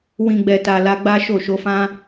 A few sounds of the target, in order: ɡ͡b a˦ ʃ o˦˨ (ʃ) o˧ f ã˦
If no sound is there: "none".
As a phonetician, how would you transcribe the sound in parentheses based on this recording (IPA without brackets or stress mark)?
ʃ